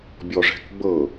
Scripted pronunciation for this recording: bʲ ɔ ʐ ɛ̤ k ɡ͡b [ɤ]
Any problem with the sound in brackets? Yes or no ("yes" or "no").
no